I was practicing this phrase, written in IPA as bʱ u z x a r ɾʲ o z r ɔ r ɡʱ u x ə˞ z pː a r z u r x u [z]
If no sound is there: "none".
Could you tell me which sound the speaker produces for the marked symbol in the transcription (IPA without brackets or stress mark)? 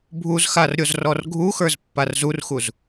z